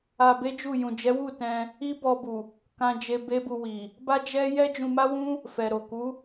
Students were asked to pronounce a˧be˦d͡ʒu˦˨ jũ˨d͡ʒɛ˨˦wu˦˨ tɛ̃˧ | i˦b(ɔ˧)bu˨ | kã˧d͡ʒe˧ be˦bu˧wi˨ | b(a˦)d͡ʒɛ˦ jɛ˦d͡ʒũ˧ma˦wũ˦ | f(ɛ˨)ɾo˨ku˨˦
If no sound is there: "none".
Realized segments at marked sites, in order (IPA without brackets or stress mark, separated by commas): ɔ˧, a˦, ɛ˨